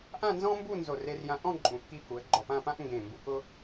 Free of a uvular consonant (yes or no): yes